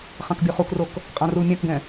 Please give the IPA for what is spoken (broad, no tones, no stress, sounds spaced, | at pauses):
χ ã k bʲ o χ u k r o k | qʼ ã r u l mʲ ã k ɡ ɛ̃